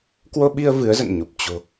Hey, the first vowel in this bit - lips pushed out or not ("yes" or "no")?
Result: yes